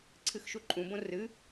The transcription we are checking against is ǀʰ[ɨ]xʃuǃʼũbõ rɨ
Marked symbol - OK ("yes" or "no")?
yes